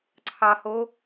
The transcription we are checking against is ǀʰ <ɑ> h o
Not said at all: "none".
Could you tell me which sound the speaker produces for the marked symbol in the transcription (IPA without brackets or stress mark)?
ɑ